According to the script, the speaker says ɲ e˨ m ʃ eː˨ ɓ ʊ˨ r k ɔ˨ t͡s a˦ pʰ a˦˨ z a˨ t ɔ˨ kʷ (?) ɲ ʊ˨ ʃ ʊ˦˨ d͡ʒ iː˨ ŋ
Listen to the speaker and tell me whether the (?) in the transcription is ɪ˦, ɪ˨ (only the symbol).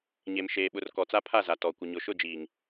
ɪ˨